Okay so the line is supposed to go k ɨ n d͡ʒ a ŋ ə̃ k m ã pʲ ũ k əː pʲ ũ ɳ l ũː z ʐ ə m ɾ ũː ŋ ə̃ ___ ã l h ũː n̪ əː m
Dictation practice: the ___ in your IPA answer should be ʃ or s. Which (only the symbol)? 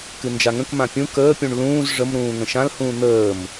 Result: ʃ